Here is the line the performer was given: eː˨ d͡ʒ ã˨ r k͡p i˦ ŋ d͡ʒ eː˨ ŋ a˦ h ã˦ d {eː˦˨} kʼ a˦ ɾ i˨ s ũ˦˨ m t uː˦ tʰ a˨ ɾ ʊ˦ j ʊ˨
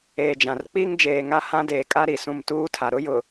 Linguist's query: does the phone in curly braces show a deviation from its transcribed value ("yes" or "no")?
yes